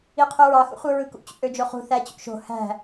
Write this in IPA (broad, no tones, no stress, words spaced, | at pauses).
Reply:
iqʰøɹɑ xṵχʷɯɹɯkṵ t͡ɕṵʔød͡ʒoχṳ θæt͡ɕṵʃo̤ hæ̤